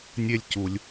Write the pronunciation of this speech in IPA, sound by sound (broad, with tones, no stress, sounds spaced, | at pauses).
nʲ e˦ lʲ c u˩ lʲ